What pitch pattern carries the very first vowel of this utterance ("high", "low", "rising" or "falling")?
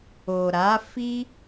low